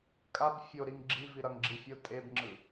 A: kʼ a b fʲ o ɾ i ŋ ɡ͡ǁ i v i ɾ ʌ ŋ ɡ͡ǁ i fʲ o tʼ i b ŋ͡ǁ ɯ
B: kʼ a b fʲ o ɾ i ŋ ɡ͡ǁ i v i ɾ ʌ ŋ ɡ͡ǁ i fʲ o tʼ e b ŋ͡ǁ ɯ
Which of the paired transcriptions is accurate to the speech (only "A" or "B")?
B